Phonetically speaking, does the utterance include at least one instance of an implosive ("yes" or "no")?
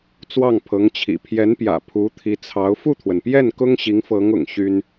no